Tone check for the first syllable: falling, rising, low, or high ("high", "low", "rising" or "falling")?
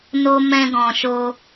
high